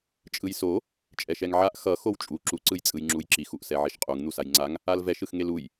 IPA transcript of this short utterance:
t͡ʃʼɯjso | t͡ʃʼɛʃɛŋʕaʔ xʌ xowt͡ʃʼu ǁu ǀɯjt͡sʼɯjŋ͡ǁujǁix uʔsɛʕiʃqʼuŋ n̪usajŋ͡ǀaŋ | alvɛʃ ɯxŋeluj

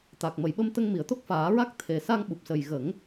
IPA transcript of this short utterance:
t̪a˨˩k̚ mə˨˩˨jɓə˧m t̪ə˧ŋmi˨˩˨ə̯t̪o˦˥k̚ faː˨˩˦ɹa˦˥k̚ t̪ʰe˨˩sa˧ŋɓu˨˩p̚sə˨˩j ɣə˨˩˦ŋ

